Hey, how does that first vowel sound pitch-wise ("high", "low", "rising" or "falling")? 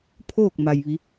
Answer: falling